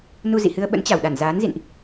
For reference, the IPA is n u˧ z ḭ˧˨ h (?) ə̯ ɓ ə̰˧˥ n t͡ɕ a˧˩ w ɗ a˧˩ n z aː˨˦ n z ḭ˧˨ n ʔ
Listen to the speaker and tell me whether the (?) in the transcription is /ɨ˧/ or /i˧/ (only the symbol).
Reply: ɨ˧